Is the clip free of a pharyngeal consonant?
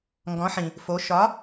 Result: no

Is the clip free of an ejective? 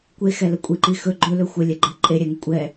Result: no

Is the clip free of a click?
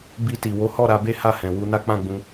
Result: yes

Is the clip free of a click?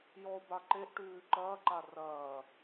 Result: no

